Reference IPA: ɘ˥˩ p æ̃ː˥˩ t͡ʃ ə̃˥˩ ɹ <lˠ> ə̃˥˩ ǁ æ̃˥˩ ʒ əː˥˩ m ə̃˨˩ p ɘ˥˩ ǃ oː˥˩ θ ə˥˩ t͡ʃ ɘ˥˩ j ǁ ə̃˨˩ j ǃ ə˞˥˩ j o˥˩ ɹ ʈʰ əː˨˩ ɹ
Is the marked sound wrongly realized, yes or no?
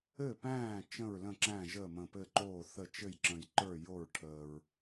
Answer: yes